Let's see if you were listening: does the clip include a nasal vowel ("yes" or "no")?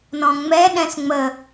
yes